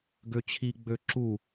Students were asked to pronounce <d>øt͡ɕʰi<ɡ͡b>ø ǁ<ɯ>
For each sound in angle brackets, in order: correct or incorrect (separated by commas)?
incorrect, correct, incorrect